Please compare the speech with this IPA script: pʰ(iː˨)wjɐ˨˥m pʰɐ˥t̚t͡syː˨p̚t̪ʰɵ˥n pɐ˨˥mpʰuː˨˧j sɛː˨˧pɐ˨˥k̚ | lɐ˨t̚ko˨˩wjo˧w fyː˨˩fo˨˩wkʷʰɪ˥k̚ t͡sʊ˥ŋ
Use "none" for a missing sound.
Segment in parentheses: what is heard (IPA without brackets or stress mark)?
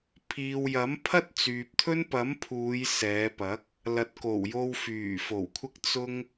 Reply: iː˨